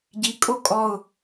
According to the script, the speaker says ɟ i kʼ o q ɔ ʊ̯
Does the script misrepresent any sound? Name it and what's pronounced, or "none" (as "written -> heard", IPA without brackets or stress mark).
q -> kʼ